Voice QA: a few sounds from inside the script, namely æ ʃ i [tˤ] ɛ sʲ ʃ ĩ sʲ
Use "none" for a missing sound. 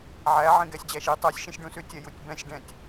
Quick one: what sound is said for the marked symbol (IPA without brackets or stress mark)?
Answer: tˤ